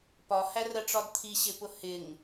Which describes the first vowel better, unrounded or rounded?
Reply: rounded